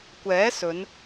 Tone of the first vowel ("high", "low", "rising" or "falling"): rising